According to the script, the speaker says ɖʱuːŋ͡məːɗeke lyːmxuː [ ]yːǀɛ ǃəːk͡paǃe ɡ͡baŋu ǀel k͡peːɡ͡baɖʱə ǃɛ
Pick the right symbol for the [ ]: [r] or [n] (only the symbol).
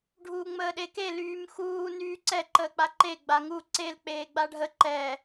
n